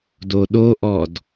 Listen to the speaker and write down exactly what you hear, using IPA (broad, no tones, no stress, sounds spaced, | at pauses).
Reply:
d o ɗ o ʔ ɔ d